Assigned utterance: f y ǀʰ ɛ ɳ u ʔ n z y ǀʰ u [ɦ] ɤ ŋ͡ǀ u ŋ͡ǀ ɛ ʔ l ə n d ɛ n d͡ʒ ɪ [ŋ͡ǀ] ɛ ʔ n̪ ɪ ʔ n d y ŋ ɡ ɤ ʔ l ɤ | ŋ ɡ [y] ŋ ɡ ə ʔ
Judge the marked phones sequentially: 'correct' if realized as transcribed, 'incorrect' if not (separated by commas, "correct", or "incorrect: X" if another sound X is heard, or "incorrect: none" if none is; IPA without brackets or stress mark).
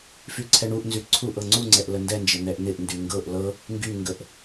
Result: incorrect: ʔ, incorrect: n̪, correct